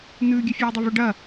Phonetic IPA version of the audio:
n̪ ʉː ɡʲ ɵ fʲ oː dˤ ɐ v ɵ ɖ ɐ

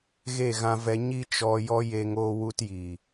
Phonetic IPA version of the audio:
ɣ e˦˨ ɣ ã˧ v ɛ˧ ɲ i˦ t͡ʃ ɔ˧ j ɔ˦ j e˧ ŋ oː˦ w u˦ t j i˨

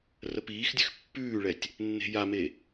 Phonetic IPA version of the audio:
r ə p iː x dʲ ʉ x pː ʉː ɭ ɛ tʲ | nː e̤ j a m e

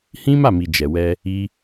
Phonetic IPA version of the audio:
h ĩ˦ m a˦˨ m i˨ d͡ʒ ɛ˨ w ɛ˧ | i˧

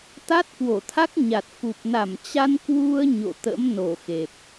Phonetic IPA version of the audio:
t̪ a˦˥ t̚ k w o˧˩ t̪ʰ a˦˥ k̚ ɲ a˨˩ t̚ f u˨˩ p̚ n a˧˩ m t͡ɕ a˧ n k w u˧ ə̯ ɲ o̰˧˨ t̪ ə̰˧˥ m n o˧˩ x e˨˩ p̚

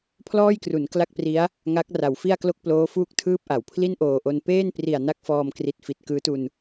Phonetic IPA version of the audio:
pʰ l ɔː˥˩ j k r u˩˦ n k l a˥˩ k̚ p r i˦˥ a̯ | ŋ a˦˥ k̚ r a˩˦ w f i˥˩ a̯ k l o˥˩ k̚ p l oː˦˥ f uː˥˩ k̚ tʰ ɯː˥˩ p̚ ʔ a˩˦ w pʰ l i˥˩ n ʔ oː˨˩ ʔ o˧ n p eː˥˩ n p r i˨˩ a̯ n a˥˩ k̚ f ɔː˧ m k r i˨˩ t̚ f i˨˩ t̚ k ɯː˦˥ t u˧ n

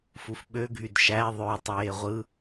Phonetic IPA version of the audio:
f u f ɓ ø ɡʱ y d ʃ æ ðˤ ø tˤ eː ʁʷ ɯ

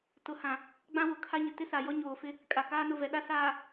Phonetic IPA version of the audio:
t ʊ˨ h ã˨ | ɡ͡b ã˦ w ʊ˨ kʰ a˦ ɲ ɪ˨ t ɪ˦ s a˨ j ɔ˦ ɲ oː˨ f ɪ˦ | kʼ a˨ k aː˦ n ʊ˦˨ v ɛ˨ ɗ a˦ s aː˨

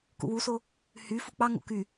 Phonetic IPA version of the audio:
k ṵ w u s o | h y f u k͡p ɑ ŋ o̰ k y

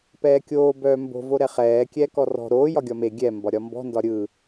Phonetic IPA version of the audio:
p ɛː kʲ oː b œː m b o̤ v o ɾ ɛ χ ɛː kʲ ɛː k ɔ r ɔ̤ ɾ oː j ɒ ɡʲ ɒ m e ɡʲ ɛ m b ɒ ɾʲ ɒ m b ɔ̤ n d ɒ ɾʲ ɯ

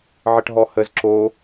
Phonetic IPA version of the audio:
ʕ ə ʈ ɦ ɔ h ə z ǁ o

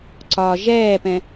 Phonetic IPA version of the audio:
ǀ ɒ ʒ ɛː p ɛ̃

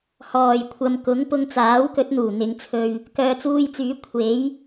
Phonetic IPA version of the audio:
h ɔː˨˩ j kʷʰ ɐ˨ m k ʊ˨˥ ŋ p ʊ˧ ŋ t͡s aː˨˥ w k ɵ˨˥ t̚ n̪ uː˨˩ n̪ ɪ˨˧ ŋ t͡sʰ ɵ˧ ɥ | k œː˨ t͡s uː˧ j t͡s yː˨˥ kʷʰ e˨˥ j

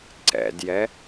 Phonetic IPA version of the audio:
ǀ ɛ̰ d j ɛ

